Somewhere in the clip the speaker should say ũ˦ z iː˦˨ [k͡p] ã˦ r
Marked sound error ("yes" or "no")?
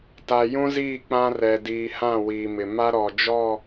no